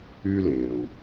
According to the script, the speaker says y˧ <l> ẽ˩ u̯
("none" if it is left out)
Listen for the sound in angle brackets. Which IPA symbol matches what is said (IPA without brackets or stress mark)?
l